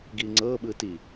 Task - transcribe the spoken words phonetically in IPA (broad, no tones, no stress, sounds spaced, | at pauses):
ɡ iː ŋ͡ǀ ɤː ɓ ɯː t i